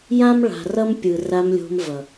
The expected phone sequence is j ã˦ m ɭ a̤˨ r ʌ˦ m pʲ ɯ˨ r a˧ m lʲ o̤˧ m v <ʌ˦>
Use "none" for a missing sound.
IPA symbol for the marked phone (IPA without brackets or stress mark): ʌ˨